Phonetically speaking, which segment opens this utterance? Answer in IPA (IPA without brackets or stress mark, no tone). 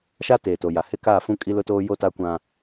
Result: ʃ